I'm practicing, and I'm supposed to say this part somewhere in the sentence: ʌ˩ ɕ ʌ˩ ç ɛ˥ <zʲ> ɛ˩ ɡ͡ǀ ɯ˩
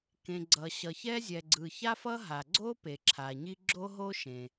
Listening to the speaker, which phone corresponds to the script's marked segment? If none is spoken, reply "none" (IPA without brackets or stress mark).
zʲ